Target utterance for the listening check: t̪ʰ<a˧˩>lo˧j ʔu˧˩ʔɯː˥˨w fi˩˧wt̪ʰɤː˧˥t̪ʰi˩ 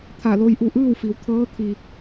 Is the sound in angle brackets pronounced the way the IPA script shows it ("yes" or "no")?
yes